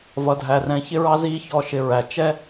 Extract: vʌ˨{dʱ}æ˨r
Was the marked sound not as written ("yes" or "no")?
no